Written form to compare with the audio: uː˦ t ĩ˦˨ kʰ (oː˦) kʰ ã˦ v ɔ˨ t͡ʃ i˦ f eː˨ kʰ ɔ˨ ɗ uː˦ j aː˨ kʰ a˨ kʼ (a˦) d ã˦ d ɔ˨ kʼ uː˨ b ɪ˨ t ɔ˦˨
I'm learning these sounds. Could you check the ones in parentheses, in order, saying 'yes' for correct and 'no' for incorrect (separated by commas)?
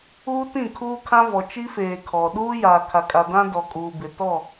no, no